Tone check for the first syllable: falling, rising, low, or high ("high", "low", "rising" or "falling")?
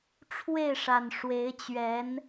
falling